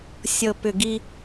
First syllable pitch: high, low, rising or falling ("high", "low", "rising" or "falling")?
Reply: low